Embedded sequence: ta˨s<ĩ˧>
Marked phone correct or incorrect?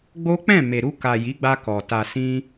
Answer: correct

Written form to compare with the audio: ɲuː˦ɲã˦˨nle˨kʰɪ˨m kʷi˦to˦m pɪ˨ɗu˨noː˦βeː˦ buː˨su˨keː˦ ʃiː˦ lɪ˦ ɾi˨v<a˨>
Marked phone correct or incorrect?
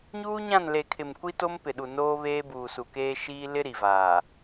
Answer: incorrect: aː˨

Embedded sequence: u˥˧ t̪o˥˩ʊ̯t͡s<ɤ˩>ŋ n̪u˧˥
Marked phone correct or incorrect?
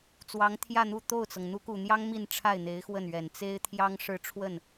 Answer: correct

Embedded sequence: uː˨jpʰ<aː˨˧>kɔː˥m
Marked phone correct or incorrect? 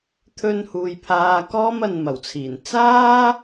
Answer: incorrect: aː˧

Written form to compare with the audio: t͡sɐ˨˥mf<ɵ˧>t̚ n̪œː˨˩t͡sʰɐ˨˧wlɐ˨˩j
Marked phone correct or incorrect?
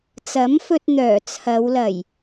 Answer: correct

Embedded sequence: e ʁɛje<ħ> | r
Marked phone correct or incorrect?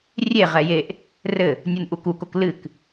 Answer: incorrect: ʔ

